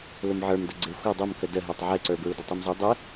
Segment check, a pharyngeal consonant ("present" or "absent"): present